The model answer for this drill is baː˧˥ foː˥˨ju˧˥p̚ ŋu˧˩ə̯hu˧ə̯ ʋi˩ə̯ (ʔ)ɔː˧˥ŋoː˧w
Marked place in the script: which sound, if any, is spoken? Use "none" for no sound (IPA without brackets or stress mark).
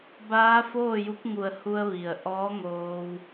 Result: ʔ